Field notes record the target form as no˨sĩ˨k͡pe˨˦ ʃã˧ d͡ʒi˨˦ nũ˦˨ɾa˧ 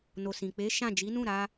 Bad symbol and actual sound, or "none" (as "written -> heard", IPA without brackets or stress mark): ã˧ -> ã˦˨